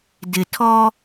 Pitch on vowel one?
low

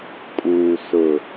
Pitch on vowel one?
low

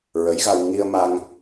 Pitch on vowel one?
rising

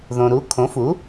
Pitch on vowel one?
low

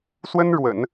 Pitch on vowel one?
high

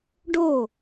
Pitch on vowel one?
falling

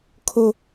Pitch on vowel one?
high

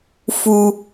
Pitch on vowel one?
low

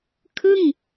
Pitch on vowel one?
falling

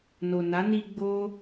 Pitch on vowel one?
low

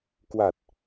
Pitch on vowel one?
low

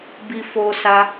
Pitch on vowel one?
high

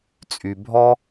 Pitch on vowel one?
low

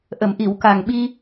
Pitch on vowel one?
low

